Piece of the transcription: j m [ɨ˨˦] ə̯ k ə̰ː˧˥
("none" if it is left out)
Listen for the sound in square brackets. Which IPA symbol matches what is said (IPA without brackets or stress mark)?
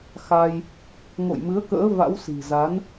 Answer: ɨ˨˦